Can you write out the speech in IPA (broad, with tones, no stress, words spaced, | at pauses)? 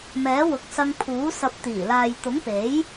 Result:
mɛː˨˥wʊ˨k̚sɐ˧ŋpʰuː˨˥ sɐ˨p̚t̪iː˨˩laː˨j t̪ʊ˨˥ŋpe˨˥j